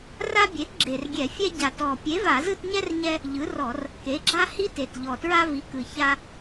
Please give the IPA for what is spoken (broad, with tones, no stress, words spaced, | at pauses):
ra˦bʲe˩˥t ɡ͡ǁe˨˩rɡʲɛ˧˩˧fʲɛ˦ ɟa˨˩tɔ˨˩ pʲe˩˥va˧˩˧zɯ˦˨tɲɛ˦r ɲɛ˦ | ʎɯ˩˥rɔ˧˩˧r | ke˩˥ɡ͡ǁa˦ hi˦te˨˩t ʎɔ˨˩tɹa˦ vi˩˥kɯ˨˩ ça˦